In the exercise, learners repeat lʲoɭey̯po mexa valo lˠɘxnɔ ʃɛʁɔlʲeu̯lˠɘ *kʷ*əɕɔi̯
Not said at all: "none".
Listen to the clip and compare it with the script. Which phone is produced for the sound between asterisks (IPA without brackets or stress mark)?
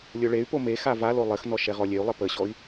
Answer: p